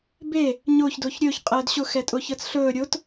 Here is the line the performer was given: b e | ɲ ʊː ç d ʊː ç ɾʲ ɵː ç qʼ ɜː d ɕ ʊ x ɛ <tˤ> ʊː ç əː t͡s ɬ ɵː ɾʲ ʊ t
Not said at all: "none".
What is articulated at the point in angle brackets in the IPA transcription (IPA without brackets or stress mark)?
tʼ